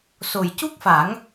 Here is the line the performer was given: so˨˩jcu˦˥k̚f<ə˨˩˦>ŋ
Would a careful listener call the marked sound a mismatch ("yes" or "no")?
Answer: yes